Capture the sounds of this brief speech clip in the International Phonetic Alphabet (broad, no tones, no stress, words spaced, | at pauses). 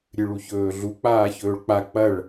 ɾʲɨɭuçɵːɮu k͡paːçɵːɭk͡pa k͡pɐɭ